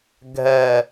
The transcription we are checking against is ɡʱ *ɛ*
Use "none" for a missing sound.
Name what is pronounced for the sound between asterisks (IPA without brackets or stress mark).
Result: ɛ